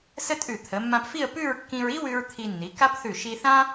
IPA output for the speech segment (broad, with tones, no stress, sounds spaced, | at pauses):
s ə˥ tʼ ʉ˧˩ t̪ʰ ə˩˧ mː ã˧ p f i˥˧ ə̯ p ʉ˥˧ ɹ kː ĩ˧ ɹ i˥ w ʉ˧ ɹ t̪ʰ i˧ nː i˩˧ k a˥ p θ ʉ˧˩ ʃ i˧ θ ã˥